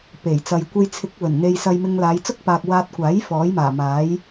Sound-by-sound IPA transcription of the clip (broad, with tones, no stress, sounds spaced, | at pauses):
p e˨˩ j t͡s ɐ˨ j kʷ e˧ j t͡sʰ ɪ˨˥ k̚ w ɵ˨˩ n n̪ e˧ j s ɐ˧ j m ɪ˧ ŋ l aː˨˧ j t͡s ʊ˥ k̚ p aː˨ k̚ w aː˧ t̚ kʷ aː˨˥ j f ɔː˨˥ j m aː˨˩ m aː˨˥ j